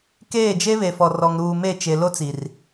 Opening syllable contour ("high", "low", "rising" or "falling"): falling